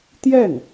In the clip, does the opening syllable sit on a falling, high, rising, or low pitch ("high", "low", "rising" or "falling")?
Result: falling